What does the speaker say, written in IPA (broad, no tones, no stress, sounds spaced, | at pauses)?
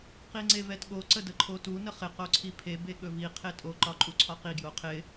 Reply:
q i ŋ͡ǀ e v ɛ t ɠ o ǀ ə d ə ǃʰ o t u n ə χ ɪ q o ǀʰ i pʰ e b e ɠ ɵ v i qʰ e tʼ o ǃ ɒ ǃʼ u ǀʰ ɒ q i ɡ j o qʰ ɪ